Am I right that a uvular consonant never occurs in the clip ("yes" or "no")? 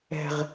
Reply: no